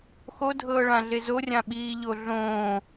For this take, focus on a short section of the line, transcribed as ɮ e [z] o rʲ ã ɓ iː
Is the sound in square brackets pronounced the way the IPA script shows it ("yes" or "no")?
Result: yes